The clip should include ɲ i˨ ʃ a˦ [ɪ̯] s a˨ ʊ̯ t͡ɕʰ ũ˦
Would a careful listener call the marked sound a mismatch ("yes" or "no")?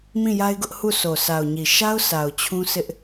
yes